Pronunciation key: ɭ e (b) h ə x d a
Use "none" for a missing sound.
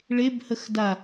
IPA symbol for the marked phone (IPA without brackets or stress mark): b